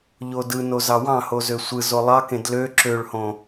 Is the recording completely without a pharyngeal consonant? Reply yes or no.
yes